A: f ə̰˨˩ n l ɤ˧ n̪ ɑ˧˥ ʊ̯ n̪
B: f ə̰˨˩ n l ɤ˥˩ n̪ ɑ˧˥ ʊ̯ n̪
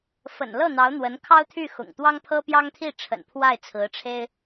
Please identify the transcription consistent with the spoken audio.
B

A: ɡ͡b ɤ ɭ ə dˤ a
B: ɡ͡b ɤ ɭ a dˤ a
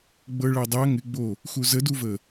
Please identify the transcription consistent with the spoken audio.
B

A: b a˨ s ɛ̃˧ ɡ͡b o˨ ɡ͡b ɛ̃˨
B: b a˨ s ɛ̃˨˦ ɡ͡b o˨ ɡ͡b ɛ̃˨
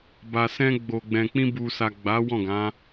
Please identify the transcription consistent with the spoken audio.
A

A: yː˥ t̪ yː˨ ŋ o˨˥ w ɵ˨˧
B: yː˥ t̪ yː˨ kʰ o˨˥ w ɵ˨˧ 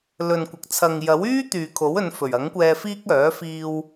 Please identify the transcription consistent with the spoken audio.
B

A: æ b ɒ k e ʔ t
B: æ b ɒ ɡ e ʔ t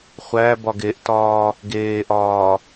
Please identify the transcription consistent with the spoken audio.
B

